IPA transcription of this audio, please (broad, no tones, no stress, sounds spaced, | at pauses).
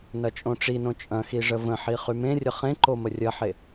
n ɐ t͡ʃʼ õ ʈ͡ʂ i n õ t͡ʃʼ ɐ̃ x i ʐ ə v ə̃ ħ i χ y m ẽ rʲ ə χ ẽ ǃ o m ə rʲ ɐ ħ e